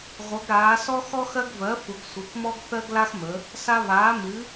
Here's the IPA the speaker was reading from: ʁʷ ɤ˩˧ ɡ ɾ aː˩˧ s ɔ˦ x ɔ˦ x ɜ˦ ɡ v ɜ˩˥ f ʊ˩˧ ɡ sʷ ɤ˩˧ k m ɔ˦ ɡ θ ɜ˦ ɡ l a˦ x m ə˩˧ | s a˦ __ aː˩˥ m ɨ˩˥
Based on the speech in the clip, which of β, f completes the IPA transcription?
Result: β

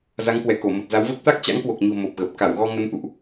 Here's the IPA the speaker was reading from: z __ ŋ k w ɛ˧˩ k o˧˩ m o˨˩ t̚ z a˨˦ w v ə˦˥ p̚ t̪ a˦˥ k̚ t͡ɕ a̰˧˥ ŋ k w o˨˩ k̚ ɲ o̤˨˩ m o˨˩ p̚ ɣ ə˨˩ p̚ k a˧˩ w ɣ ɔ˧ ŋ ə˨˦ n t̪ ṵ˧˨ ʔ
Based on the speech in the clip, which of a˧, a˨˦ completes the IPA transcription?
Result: a˨˦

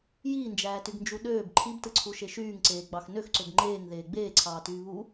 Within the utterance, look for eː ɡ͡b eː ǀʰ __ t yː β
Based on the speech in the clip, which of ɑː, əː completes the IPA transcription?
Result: ɑː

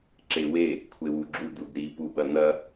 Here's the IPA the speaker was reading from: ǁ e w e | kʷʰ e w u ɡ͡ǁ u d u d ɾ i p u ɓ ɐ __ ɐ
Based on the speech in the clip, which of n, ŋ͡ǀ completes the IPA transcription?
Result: n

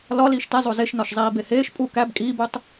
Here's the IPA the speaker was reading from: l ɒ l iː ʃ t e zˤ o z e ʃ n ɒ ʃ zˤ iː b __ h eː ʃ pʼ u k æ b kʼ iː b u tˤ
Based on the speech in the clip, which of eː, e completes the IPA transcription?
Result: e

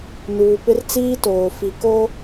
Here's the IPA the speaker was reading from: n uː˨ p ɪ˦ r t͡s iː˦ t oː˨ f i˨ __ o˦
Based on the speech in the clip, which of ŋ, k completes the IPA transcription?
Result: k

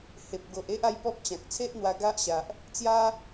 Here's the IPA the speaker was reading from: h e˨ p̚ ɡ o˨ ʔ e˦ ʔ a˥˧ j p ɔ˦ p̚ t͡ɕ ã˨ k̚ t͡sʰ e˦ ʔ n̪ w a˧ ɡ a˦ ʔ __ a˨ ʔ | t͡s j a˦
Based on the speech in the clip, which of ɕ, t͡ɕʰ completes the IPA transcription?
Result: ɕ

